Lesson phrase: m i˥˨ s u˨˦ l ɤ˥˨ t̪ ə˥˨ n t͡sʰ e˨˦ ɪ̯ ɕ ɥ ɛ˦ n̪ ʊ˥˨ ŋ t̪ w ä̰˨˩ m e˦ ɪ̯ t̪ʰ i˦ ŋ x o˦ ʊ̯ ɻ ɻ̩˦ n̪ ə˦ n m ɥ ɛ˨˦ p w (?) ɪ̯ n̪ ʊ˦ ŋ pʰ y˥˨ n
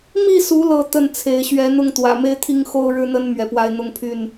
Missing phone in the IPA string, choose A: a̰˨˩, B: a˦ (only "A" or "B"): B